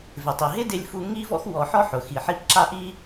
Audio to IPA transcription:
vɪ˩tˤi˩ ɦɪ˥dɪ˧lʲfu˧ ŋi˥vɔ̰˥x wɔ˧ ħɔ˥ħʊ˩ xi˩ħi˧p ǁa˥ʔi˥

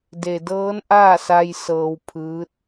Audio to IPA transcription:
de˩dɤː˧˥nʔaː˥˨sa˧j sɤː˧wpʰɯː˧˥t̚

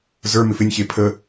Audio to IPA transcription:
zə˞mɪf ɪnʲçe pʰə

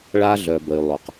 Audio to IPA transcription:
ɭa˧ɮœ˩bə˩y̯ lˠo˩q

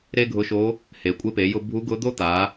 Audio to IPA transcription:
ɾe˥ɡʱʊ˧˥ʃo˧˥ | he˩kʷʼe˧pe˩˧jʊ˧ bʱu˧˥ɡʊ˧˥d̪o˥ t̪a˩˧

